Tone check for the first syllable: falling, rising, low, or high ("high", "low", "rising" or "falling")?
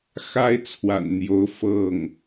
high